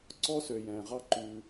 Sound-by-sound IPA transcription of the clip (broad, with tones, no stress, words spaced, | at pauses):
ǀɔ˦sø˨jɛ̃ː˨ʁɑ˦ ǃʉː˦